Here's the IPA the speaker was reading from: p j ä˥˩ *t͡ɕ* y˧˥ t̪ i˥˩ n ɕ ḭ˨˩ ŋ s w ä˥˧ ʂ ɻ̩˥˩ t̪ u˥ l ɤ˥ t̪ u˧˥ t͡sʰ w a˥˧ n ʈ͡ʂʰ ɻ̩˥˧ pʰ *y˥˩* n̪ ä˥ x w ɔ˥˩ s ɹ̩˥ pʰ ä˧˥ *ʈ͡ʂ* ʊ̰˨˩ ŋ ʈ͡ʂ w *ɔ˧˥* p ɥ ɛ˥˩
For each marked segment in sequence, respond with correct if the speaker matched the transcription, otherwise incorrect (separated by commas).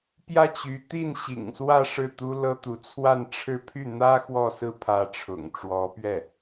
correct, correct, incorrect, correct